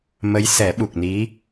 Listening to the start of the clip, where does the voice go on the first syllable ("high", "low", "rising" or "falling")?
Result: rising